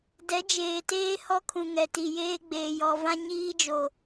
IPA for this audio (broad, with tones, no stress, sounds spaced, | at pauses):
d ɛ˨˦ d͡ʒ eː˨ t eː˦ h ɔ˦ kʰ ũ˨ ŋ ɛ˨ t i˨ j eː˦ ɡ͡b eː˨ j ɔ˨ v ã˦ ɲ iː˦ d͡ʒ o˨